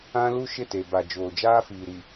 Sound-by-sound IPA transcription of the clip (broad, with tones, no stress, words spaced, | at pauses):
ã˦lu˦ ʃɪ˦˨te˨ba˨ d͡ʒoː˨d͡ʒaː˦fiː˨ɾi˨